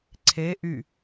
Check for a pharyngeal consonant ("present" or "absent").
absent